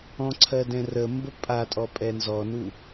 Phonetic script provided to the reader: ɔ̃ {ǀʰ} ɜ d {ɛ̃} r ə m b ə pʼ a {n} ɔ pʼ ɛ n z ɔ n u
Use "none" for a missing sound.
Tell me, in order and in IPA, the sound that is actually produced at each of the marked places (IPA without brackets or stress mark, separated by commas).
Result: ǀʰ, ɛ̃, tʼ